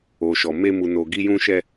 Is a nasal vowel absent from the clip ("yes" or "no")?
no